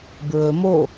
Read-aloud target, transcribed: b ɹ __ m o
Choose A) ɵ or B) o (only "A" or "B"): A